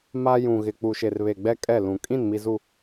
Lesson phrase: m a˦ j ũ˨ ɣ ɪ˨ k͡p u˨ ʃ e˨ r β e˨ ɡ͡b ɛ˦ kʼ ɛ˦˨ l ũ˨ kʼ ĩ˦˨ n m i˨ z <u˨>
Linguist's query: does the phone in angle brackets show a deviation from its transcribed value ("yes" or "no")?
no